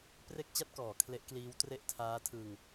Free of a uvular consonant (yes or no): yes